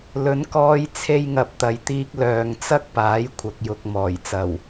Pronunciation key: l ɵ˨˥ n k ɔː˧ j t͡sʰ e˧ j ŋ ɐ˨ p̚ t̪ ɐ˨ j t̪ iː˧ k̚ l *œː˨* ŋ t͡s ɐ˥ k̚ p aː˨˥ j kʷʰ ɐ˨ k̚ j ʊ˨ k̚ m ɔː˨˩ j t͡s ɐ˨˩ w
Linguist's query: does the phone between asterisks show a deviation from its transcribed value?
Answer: no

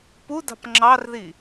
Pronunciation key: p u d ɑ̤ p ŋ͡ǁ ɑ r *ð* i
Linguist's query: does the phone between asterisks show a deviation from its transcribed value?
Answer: no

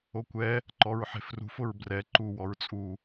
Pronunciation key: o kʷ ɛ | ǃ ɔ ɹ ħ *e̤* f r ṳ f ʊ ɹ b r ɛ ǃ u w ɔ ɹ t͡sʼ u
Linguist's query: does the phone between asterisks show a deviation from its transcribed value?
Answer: no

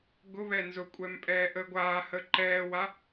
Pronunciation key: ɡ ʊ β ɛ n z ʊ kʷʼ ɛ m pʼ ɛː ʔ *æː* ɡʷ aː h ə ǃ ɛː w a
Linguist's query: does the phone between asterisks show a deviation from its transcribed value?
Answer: yes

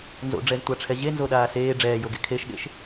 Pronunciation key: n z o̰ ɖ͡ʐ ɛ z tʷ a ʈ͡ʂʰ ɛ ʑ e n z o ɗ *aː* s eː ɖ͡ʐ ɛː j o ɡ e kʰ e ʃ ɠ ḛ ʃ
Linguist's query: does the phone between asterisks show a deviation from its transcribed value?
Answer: no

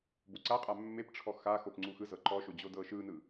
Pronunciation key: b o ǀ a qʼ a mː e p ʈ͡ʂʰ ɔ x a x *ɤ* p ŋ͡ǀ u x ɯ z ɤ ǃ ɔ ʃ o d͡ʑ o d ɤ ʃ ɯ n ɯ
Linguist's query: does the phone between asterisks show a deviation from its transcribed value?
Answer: yes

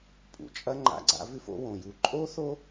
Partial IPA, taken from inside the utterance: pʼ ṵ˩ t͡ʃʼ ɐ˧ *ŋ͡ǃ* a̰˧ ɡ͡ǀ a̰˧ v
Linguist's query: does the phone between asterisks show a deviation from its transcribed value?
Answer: no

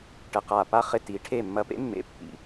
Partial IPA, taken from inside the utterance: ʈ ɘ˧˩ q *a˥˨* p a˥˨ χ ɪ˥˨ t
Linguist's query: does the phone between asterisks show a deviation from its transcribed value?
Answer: yes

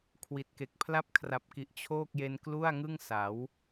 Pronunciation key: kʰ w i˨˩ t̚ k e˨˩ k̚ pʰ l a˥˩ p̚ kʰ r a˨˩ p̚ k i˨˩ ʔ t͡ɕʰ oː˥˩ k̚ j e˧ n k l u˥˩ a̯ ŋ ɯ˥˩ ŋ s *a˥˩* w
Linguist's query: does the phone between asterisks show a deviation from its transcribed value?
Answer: yes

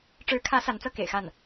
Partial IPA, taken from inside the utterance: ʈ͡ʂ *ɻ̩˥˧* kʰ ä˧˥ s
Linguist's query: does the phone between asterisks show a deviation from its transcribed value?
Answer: yes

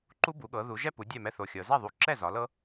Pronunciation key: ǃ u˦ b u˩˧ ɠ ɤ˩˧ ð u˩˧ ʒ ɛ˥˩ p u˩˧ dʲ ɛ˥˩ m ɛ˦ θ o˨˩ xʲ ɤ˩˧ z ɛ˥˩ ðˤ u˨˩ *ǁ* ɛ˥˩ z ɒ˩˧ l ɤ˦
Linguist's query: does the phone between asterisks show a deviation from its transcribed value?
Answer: no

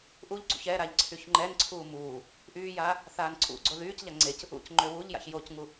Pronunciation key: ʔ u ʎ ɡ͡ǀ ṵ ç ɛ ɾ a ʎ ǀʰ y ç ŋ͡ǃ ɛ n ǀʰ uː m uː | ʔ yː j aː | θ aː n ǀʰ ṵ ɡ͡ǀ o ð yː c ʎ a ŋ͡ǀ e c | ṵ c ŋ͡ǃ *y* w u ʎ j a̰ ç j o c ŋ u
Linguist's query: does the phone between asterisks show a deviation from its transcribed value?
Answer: yes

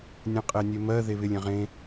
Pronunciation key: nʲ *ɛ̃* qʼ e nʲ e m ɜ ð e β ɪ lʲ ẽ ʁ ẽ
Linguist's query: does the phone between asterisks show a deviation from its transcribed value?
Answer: no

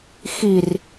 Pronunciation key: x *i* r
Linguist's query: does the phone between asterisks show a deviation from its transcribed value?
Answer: no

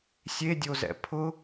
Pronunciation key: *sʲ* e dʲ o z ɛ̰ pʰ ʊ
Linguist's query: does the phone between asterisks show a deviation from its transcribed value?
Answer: no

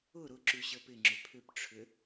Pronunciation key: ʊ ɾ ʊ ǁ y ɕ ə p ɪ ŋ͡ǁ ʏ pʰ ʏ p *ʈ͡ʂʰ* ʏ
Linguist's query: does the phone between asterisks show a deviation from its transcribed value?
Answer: no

